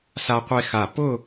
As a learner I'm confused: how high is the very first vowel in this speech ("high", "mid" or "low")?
low